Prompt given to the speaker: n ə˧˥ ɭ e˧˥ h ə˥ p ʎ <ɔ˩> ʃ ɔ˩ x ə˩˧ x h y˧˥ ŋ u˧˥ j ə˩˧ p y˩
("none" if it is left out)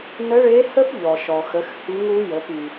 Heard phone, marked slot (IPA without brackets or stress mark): ɔ˩